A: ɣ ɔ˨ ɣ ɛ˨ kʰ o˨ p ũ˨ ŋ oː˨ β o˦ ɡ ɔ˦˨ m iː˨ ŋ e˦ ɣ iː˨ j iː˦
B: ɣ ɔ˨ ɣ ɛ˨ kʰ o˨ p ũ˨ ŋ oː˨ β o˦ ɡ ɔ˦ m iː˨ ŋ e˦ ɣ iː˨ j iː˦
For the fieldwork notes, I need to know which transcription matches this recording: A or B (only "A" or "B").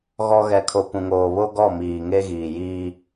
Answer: A